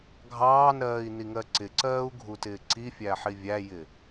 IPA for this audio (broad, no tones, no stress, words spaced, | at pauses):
ɡʱɑːnɾɜːi̯niŋɜ ǀɪǀɜːu̯ɡʱutɪː ǀifʲæħi vʲæjɪ